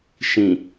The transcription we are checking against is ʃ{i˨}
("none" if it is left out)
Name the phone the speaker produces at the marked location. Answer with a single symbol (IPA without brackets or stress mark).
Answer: ĩ˨